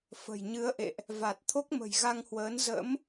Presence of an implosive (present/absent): absent